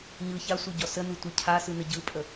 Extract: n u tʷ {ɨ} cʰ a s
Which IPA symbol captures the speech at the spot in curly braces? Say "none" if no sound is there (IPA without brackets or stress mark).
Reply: ɨ